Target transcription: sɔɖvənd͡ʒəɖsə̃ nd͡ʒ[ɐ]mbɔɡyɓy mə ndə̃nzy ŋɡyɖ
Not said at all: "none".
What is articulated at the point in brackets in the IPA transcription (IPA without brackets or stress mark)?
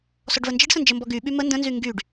ə